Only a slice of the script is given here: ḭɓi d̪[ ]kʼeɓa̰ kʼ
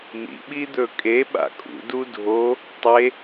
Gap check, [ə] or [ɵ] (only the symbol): ɵ